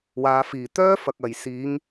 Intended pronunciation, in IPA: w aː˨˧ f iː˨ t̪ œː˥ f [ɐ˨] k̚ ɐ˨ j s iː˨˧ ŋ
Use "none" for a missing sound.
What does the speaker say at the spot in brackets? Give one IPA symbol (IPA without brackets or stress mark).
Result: ɐ˨